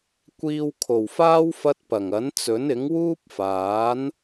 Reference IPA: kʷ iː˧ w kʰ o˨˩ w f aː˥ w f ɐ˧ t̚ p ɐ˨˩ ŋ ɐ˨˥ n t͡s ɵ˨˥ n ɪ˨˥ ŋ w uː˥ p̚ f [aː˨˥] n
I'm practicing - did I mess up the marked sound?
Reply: no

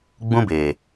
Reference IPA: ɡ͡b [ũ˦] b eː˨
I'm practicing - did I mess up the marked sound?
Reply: no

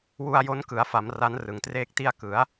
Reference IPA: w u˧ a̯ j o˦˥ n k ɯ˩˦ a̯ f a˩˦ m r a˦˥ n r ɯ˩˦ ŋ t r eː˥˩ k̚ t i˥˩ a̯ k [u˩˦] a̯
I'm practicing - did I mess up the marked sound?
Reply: yes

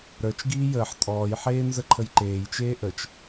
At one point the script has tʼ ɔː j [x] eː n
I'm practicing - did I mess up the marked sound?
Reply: yes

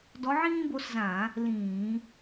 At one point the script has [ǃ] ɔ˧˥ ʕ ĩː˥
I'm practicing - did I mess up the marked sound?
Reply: yes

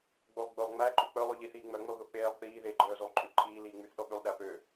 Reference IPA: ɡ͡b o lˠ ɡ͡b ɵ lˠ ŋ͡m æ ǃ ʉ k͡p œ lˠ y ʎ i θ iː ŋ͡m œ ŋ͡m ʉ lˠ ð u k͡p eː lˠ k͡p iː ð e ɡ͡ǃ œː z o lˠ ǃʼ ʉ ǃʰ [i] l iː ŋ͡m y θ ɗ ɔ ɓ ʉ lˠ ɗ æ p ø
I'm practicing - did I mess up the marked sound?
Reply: yes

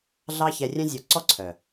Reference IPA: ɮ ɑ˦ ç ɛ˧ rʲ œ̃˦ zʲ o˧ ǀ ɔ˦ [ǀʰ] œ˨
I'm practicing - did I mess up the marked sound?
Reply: no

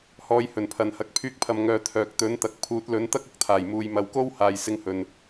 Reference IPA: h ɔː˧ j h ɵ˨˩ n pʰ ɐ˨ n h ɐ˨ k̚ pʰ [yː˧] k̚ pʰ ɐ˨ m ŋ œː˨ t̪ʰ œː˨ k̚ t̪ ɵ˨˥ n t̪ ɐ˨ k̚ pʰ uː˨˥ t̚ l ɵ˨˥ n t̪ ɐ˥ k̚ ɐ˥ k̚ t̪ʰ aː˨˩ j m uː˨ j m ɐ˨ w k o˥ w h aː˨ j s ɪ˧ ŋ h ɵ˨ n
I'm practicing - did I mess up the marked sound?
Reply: no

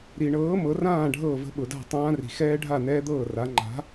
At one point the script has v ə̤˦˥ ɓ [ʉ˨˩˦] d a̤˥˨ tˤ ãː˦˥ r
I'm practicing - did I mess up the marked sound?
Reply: yes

